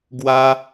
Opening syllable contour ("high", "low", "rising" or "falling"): high